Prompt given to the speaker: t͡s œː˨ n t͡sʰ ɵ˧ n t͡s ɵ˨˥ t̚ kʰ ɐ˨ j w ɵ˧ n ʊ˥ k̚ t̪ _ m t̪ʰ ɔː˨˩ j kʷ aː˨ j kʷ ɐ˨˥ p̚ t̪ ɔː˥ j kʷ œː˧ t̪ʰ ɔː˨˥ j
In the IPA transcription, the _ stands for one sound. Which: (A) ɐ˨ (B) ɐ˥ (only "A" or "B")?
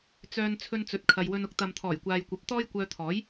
A